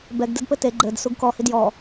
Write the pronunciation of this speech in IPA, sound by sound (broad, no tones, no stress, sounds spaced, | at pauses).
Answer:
b ɛ ɡ d ɘ d p ɘ t e ɡ͡ǃ ɘ d s u ɡ k ɔ h i d j ɔ